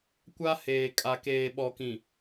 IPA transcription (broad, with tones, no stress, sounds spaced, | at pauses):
kʷ a˦ h eː˨ kʼ a˨ k eː˨ ɓ ɔ˨ k ĩ˨